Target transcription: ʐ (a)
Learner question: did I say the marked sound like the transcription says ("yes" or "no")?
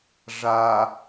yes